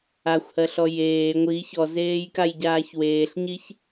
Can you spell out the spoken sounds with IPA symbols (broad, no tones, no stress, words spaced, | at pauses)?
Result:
axʷhɜɬɔ jeː ŋʷi çɔzeːjkajɟaːç weːɬɲiç